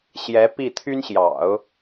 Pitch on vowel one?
rising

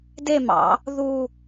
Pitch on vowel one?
falling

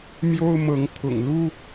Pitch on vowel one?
high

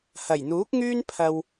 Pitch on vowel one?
low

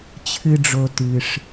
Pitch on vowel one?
high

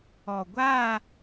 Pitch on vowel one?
low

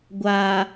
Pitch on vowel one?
low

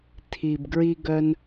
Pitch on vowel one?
low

